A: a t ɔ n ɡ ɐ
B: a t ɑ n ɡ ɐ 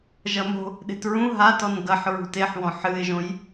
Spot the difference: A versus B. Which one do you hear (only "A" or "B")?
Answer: A